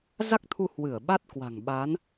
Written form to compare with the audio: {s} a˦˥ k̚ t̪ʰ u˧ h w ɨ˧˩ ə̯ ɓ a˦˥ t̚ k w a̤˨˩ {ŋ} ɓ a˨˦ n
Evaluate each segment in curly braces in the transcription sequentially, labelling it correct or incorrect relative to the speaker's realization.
incorrect: z, correct

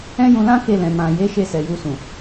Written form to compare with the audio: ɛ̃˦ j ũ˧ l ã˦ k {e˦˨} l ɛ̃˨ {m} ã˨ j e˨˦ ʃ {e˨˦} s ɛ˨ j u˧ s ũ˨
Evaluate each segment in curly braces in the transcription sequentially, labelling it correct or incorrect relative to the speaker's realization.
correct, correct, incorrect: e˦˨

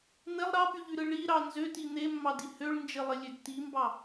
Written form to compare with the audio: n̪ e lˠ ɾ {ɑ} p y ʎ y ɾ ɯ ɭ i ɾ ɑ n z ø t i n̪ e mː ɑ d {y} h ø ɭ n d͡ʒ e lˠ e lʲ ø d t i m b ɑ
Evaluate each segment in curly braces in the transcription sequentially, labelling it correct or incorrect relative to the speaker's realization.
correct, incorrect: i

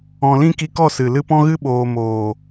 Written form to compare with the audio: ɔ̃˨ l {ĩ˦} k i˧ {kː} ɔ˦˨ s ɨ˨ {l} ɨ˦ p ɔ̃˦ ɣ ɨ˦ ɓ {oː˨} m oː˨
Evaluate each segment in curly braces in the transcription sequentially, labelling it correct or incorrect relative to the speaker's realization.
correct, incorrect: k, correct, correct

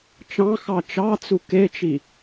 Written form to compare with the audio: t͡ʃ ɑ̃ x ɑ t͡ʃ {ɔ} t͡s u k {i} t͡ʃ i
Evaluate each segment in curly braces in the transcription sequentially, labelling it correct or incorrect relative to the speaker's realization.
incorrect: ɑ, incorrect: e

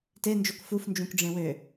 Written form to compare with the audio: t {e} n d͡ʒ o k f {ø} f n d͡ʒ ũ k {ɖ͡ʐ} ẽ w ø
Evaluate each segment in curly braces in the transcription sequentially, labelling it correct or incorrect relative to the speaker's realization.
correct, incorrect: u, correct

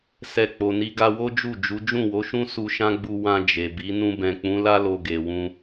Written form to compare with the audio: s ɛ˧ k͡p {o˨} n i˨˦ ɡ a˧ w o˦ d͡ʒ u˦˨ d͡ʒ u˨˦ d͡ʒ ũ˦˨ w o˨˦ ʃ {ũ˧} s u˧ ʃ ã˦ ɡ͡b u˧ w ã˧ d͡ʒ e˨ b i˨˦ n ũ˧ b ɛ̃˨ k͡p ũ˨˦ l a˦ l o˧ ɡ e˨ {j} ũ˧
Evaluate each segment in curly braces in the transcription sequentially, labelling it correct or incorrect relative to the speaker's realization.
correct, incorrect: ũ˦, incorrect: w

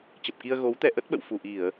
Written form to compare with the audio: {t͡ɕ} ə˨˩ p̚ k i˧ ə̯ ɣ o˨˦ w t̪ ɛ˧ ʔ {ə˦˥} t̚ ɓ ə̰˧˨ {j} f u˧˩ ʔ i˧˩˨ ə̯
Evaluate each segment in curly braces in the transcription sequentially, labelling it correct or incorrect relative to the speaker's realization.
correct, correct, incorrect: w

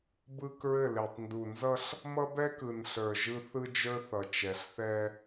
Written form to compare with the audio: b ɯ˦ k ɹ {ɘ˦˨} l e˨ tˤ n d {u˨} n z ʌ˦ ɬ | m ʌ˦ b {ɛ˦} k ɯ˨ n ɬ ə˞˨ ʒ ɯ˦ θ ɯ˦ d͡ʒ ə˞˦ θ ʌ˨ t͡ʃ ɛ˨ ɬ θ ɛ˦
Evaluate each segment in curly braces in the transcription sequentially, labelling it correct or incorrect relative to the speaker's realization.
correct, correct, correct

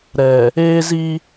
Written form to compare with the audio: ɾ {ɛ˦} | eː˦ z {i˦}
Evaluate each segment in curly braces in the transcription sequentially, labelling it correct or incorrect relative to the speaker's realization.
incorrect: ɛ˨, correct

